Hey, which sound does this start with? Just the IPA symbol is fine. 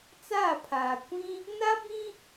t͡s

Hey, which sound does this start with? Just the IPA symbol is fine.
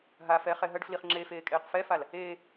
ɦ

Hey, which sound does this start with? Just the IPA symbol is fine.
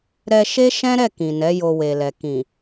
ɾ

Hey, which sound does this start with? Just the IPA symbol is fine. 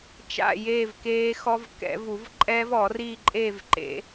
t͡ʃ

